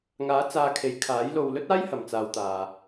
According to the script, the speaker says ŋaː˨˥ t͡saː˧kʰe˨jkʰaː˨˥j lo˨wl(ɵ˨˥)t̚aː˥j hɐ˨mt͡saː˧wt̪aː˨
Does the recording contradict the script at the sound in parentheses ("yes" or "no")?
yes